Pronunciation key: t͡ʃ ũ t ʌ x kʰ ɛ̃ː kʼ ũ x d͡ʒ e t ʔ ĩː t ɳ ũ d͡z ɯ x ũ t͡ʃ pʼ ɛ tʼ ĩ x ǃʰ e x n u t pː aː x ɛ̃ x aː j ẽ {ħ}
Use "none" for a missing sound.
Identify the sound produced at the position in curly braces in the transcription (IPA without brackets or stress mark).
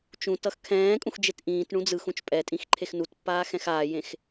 x